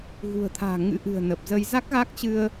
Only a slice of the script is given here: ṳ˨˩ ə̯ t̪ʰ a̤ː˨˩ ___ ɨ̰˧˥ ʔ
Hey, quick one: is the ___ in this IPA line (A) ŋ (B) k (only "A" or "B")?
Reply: A